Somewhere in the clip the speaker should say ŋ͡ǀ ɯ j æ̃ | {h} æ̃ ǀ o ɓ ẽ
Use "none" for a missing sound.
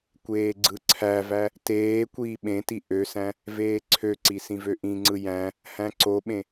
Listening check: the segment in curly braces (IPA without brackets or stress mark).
h